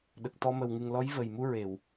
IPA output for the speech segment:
ɗ ə˨˩ k̚ t̪ ɔ˧ m ə˨˩ w ŋ ɨ˨˩ ŋ l ɔ˧˥ j v ə˨˩ j m u˧ ɹ e˨˩˨ w

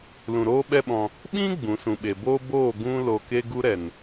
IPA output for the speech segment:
l ũ˨ ɾ oː˦ ɓ ɛ˦ ɓ ɔ̃˧ | ɓ ĩ˦ ɡ͡b ũ˨˦ s ũ˨ ɓ e˨ b oː˦ b oː˦˨ ɡ ũ˦ l o˧ k e˦ ɡ u˦ ɾ ɛ˨ n

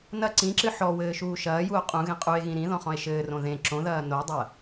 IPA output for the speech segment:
n ɐ ǀ ĩ ǁ ɨ ħ ɔ w ɘː ʃ uː ʃ ɐː j u o̯ qʼ ũ ɣ ẽ qʼ u e̯ ɣ ĩ ɾ ĩ ð ɔ̃ χ ɔ̃ e̯ ʃ ɘː r õ ð ẽ ǁ õ ð ɐː n o dˤ ɐ

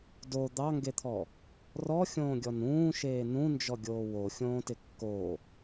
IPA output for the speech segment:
d o d̪ ɑ ŋ ɡ e t̪ʰ ɔ | r ɔ xʲ õː ɡʲ ɔ n ũː ʃ eː n ũ n d͡ʒ ɔ ɡʲ oː w o xʲ õː t ɪ kː o

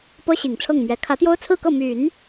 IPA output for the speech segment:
p ɤ˥ ɕ i˨˩ ŋ ʈ͡ʂʰ ɤ˥˩ ŋ m ɥ ɛ˧˥ kʰ ä˧˥ t̪ j o˥ ʊ̯ t͡sʰ ɹ̩˥˧ k ɤ˥˩ m y˨˩˦ n

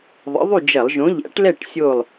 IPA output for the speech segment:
ðˤ ə̰˨˥ ðˤ y˥˨ d͡ʒ ɐ˧˩˧ lˠ ʒ õ˨˥ ʎ æ̰˨˥ ʈ l ɛ˥˨ ʈ sʲ o˥˨ lˠ

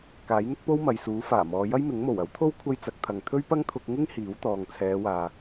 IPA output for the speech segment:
k aː˨˥ j n̪ ɪ˥ k̚ p o˥ w m ɐ˨ j s uː˨˥ f aː˨˩ m ɔː˨˧ j ɐ˥ j m ɪ˨˥ ŋ m o˨˩ w ɐ˨˥ w t̪ʰ o˥ w kʷʰ ɐ˥ j t͡s ɐ˨˥ k̚ t̪ʰ ɐ˨ ŋ t̪ʰ ɵ˥ ɥ p ɐ˥ ŋ t̪ʰ ʊ˧ k̚ ŋ ɪ˥ ŋ h iː˨˥ w t̪ ɔː˨ ŋ t͡sʰ ɛː˨˧ w aː˨

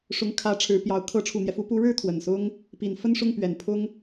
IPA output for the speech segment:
ʂ ʊ˧˥ ŋ kʰ ä˧˥ ʈ͡ʂʰ ɻ̩˧˥ p j ɑ˧˥ ʊ̯ kʰ ɤ˧˥ ʈ͡ʂʰ u˨˩ n̪ j ɛ˦ f u˧˥ p u˧˥ ɻ ɻ̩˥˩ t̪ʰ w ə˨˩ n s ʊ˥ ŋ | p i˨˩ n f ə˥˧ n ʂ ʊ˥˩ ŋ p ɥ ɛ˨˩ n pʰ ʊ˥ ŋ

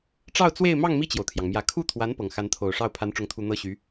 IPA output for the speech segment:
ʈ͡ʂ ɑ˥˧ ʊ̯ t͡s w e˥˧ ɪ̯ m ɑ˥˧ ŋ m i˥˩ t͡ɕ j o˩ ʊ̯ t̪ʰ j ɑ˩ ŋ m j ä˨˩ kʰ u˥˩ t̪ʰ w a˧˥ n p ɤ˨˩ ŋ x a˧˥ n t̪ʰ o˨˩ ʊ̯ ʂ ɑ˥˩ ʊ̯ pʰ a˧˥ n ʈ͡ʂ ʊ˧˥ ŋ t̪ʰ u˨˩ n̪ ɤ˥˩ ɕ y˧˥

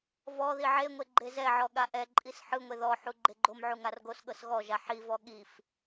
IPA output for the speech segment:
v ɔ ð i ʕ e ŋʷ e ɡ͡ǃ e z ɛ ʕ ɔ ɠ a ʔ ɛ ǃʼ i s ħ ɯ ŋʷ e ð ɔ ħ u ɡ͡ǃ e ɡ͡ǃ o m ʕ u ŋ a r ɡ o s ɠ ɤ s ɣ ɔ ʒ a ħ i v ɔ ɠ i f

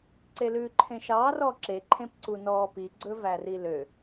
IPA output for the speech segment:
ǀ e l ʉː ǃʰ ẽ ʃ ɑː r ɔː ǁ e ǃʰ ẽ p ǀ u n ɔː p i ɡ͡ǀ ɵ v æ r i l ø

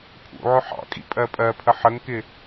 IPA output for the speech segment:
pʰ ṵ ʕ ʊ ħ ɑ̰ kʼ ḭ pʼ ɜ pʼ ɜ pʰ ə ħ ə ŋ k ɪ

